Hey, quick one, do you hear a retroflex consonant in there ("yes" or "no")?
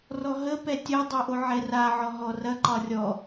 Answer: no